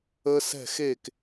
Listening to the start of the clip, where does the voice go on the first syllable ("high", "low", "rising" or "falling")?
high